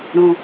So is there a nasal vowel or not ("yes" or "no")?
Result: yes